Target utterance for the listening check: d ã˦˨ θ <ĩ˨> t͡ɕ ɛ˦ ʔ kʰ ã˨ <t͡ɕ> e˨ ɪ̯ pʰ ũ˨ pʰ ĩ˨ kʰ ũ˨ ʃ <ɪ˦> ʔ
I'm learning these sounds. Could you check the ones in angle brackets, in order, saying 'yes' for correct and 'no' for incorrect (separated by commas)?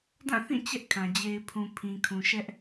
no, no, no